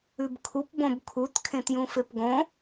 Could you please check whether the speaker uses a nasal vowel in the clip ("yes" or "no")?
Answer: yes